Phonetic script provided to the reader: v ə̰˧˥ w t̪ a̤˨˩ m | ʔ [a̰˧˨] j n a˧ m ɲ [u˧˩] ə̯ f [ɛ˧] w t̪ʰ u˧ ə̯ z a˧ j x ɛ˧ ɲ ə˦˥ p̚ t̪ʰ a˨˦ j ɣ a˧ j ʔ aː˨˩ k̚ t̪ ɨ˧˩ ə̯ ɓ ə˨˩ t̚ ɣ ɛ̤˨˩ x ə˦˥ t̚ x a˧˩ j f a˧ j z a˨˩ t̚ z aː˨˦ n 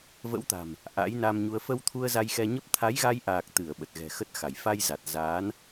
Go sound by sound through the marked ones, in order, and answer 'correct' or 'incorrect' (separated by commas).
incorrect, incorrect, incorrect